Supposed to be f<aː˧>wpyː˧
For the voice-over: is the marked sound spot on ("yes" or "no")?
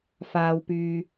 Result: yes